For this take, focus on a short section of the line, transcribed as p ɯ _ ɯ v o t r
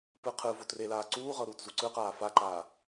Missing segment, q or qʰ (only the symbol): qʰ